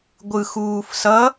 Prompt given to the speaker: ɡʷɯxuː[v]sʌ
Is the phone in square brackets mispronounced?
yes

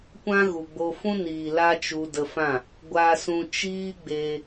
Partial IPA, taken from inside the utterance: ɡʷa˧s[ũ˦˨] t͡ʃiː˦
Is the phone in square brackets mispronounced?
yes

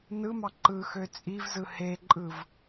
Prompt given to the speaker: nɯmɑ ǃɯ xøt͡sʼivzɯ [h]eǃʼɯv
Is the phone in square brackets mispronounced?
no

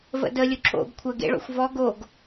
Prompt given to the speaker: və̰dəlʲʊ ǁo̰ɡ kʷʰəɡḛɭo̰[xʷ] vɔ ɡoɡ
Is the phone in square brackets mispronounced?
no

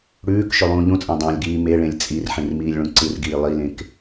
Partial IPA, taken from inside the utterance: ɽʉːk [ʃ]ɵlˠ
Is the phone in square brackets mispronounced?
no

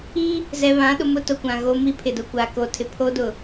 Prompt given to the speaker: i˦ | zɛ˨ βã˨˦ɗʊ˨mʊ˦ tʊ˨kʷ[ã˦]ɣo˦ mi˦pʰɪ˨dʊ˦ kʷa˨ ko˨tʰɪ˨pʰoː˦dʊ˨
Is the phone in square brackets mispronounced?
yes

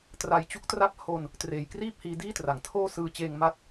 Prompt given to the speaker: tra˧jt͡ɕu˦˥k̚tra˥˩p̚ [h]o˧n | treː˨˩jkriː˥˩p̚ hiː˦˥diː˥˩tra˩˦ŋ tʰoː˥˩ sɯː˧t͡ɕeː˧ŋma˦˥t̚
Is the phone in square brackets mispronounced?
no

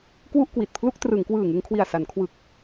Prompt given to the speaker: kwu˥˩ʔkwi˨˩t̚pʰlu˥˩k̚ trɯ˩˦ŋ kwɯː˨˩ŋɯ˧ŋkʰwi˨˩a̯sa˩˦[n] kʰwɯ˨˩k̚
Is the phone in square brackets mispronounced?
no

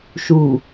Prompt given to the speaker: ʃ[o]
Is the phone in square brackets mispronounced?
yes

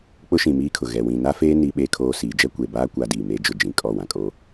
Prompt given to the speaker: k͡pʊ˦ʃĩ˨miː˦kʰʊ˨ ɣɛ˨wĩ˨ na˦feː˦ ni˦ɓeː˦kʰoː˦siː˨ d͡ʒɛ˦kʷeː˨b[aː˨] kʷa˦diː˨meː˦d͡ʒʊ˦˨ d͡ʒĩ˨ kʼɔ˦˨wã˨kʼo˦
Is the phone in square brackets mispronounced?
yes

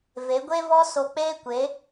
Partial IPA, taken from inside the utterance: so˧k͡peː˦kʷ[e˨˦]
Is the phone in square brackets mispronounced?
no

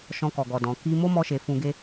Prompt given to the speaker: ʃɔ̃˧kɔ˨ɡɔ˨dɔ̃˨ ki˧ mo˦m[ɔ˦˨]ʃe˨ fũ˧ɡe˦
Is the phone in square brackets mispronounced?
yes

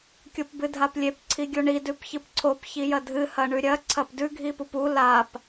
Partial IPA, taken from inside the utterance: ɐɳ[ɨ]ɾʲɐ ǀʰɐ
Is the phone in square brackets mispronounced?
yes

